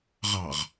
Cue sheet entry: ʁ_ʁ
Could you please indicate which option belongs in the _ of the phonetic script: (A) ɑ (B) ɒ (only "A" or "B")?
A